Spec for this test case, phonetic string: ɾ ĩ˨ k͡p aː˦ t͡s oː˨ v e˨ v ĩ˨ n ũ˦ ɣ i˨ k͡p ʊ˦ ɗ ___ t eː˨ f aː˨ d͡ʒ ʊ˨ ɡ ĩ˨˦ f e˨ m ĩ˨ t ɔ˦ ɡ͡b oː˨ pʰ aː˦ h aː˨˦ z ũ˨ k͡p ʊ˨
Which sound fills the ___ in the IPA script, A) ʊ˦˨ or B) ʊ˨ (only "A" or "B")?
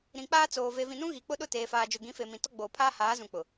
A